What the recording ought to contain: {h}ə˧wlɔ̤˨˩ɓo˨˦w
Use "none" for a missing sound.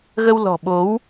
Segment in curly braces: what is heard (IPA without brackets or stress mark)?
ɣ